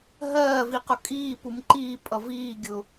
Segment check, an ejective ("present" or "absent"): present